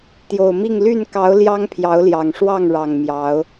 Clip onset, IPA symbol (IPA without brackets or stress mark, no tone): t̪